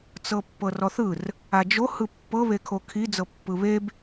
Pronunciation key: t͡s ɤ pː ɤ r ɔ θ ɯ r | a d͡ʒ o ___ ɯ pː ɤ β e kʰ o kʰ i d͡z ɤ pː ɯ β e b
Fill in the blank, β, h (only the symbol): h